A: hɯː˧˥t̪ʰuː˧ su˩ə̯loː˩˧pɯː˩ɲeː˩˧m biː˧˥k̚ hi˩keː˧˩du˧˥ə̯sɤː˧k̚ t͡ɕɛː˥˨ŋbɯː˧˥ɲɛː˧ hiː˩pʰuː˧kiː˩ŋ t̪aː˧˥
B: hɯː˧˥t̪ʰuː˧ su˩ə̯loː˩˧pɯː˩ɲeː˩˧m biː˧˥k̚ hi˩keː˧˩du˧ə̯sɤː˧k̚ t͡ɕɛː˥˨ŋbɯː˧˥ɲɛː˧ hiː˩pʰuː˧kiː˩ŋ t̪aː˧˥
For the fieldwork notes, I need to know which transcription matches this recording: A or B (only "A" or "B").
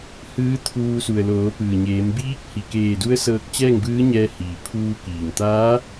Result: A